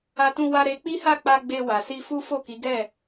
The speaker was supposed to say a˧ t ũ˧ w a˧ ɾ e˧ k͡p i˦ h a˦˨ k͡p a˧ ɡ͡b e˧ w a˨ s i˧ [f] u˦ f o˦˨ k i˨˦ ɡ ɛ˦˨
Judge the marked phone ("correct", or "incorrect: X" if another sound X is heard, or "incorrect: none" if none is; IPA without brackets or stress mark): correct